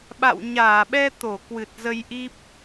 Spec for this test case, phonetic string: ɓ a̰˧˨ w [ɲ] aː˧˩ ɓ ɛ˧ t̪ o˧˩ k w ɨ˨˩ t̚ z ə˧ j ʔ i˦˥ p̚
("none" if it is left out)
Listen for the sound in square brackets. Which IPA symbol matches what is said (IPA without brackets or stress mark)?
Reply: ɲ